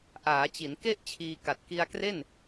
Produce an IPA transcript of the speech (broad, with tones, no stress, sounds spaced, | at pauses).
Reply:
ʔ aː˩˦ t͡ɕ i˩˦ n k e˥˩ ʔ t͡ɕʰ iː˧ k a˨˩ t̚ k i˧ a̯ k r e˥˩ n